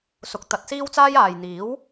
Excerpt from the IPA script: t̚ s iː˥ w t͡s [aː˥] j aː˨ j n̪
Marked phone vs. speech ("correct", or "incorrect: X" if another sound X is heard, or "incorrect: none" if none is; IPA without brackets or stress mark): correct